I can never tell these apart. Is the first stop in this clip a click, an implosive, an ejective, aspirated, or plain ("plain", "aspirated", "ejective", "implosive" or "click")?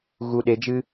implosive